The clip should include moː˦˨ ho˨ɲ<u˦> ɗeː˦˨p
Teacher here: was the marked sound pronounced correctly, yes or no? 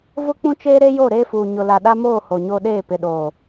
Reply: no